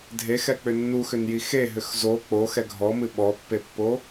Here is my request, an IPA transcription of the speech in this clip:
dʱ e x ɛ k͡p ʏ nː u x ʏ n j i x e ɦ ʏ x z o k͡p o x ɛ ɡʱ ɔ m ɨ ɓ ɔ pː e pː o

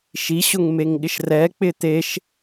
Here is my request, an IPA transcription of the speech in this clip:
ʃ i ɕ ʊ ŋ m e ŋ ɠ ɪ ʃ r ɛ k͡p ɪ t̪ e ʃ

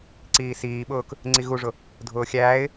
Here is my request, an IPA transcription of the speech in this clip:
ǀ iː s iː ɓ ʊː k | ŋ͡ǀ i ɣ u ʐ ʊ | dʱ ʊː xʲ æː ɪ̯

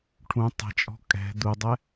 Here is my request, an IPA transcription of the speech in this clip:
ʈʰ ũ tˤ ɛ̤ t͡ʃʼ ɔ̤ kʼ ɛ̤ d̪ u dˤ ɛ

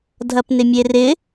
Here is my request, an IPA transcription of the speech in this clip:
dʱ ɐ p n ɪ mʲ e r ɪ

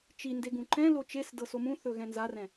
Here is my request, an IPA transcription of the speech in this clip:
t͡ʃ i n d e ɡ ũ ǃ ɛ̃ l o t͡ʃ e s d ɤ s o m ũ θ ɵ ɣ ɛ̃ n z a r ɛ̃

